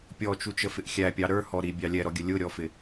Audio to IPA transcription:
pʲ ɔ t͡ʃ u t͡ʃ ə f ɪ ʔ xʲ æ pʲ ɑ ɾ ə˞ h ɔ ɾ i bʲ ɑ lʲ ɛ ɾ ɔ ɡʲ ə lʲ ʊ ɾʲ ɔ f ɪ

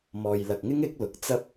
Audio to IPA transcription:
m ɔː˨ j l ɐ˨ k̚ ŋ ɪ˥ ŋ ɪ˨˥ k̚ l ʊ˨˥ k̚ t͡s ɐ˥ p̚

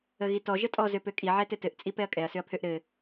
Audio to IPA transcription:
ə ɣ i t ɔ ʒ ə tʼ ɔ z ø p ø kʼ i ʕ ɛ t ɘ t ɘ ʔ t͡sʼ i p ɛ ɐ̯ kʼ ɛ ɐ̯ s ø ɐ̯ pʰ ø ʔ ɾ ɘ

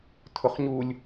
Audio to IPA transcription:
tʰ ʊ χ ɲ u lʲ

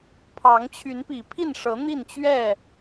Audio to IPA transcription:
pʰ ɑ˨˦ ŋ t͡ɕʰ y˨˦ n p i˨˩ pʰ i˥˨ n ʂ ɤ˨˦ n̪ i˥˨ n t͡ɕ ɥ ɛ˥˨

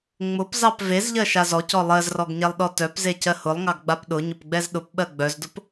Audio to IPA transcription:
ŋ͡m ʊ p z ɑ p v e z ʎ ɜ ʃ a z ɔ c ɔ lˠ ɜ z r ɔ ɡ ɲ ɛ lˠ ɗ ɔ t œ p z e c ɜ h ʊ lˠ ŋ ɑ ɡ ɡ͡b a p ɗ ʊ ɲ ʊ p ɡ͡b ɛ z ɗ ʊ p ɓ ɜ ɡ͡b œ z d ʊ p

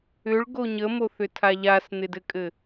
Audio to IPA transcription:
ʏ ɭ ɡ o ɲ ə m o θ ʏ tʰ a ʎ a s n̪ ɪ d ɘ kʼ ɘ

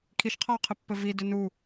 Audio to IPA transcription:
kʰ i ʃ qʰ ɔ w qʰ ɪ pː ɘ v i d ʏ n u

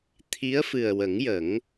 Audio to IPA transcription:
t̪ʰ i˧˥ ə̯ f ɨ˨˩ ə̯ w ə˨˩˦ ŋ j ə˨˩˦ ŋ

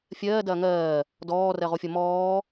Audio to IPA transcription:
fʲ ɜː d ɐː ŋ ɜː | d ɔː r ɜ ʁ o fʲ ʌ m ɔː

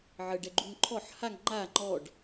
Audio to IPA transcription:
ʕ ə ɖ ɛ ɡ͡ǃ u ŋ ǃʰ ɔ ħ h a ŋ ŋ͡ǃ a ŋ͡ǃ ɔ ɖ

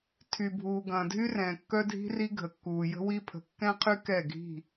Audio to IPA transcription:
tʰ y˨ bʱ uː˨ ɡ ɐ̃ː˨ dʱ y˦ r ɛ̃ː˨ kː œ˦ dʱ i̤˦ r i˦ ɡʱ ə˨ kː uː˨ j ə̤˦ w i˦ pʰ ə̤˨ kː ɛ̃˦ qʰ y˦ k ɛ˦˨ ɡʱ i̤˦˨

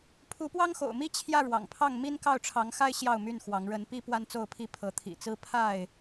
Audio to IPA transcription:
pʰ u˨˦ p w ɑ˦ ŋ x o̰˨˩ ʊ̯ m i˦ t͡ɕʰ j ä˥˨ ɻ w ɑ̰˨˩ ŋ pʰ ɑ˥˨ ŋ m i˦ n k ɑ˥˨ ʊ̯ ʈ͡ʂʰ ɑ˨˦ ŋ x a˦ ɪ̯ ɕ j ɑ˥˨ ʊ̯ m y˥˨ n x w ɑ˨˦ ŋ ɻ ə˨˦ n p i˦ p w a˦ n t͡s o˥˨ ʊ̯ pʰ i˥˨ pʰ ɤ˨˦ t̪ʰ ḭ˨˩ t͡s ɹ̩˦ pʰ a˥˨ ɪ̯

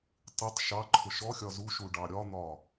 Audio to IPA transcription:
tˤ ɪ tˤ ʃ ɑ ǃʰ ʊ ʃ ɔ xʲ ɒ z u ʃ u ɖ ɑ ɾʲ ɒ n̪ ɒ

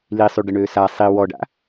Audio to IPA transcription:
l i sˤ y ɖ ə ɳ øː s a sˤ i w ɔ ɖ a̰

